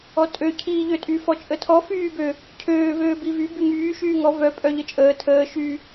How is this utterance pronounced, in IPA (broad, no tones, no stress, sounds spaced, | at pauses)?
ɔ tʼ ø cʰ iː ʎ ø tʼ y f ɔ t͡ʃʼ ə tʰ ɔ f yː b ø | cʰ øː v øː b i v y b y ŋ yː ʃ yː ŋ ɔ v œ pʼ œ ʎ ə t͡ʃʼ əː tʰ əː ʃ y